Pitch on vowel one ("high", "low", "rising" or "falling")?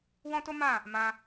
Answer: high